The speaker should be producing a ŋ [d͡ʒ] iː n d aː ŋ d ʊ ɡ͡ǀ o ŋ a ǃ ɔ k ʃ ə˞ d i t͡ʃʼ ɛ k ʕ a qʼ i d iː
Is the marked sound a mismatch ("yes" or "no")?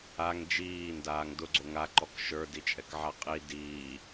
no